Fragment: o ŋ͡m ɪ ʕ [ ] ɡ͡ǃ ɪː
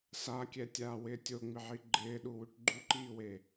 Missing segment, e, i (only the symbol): i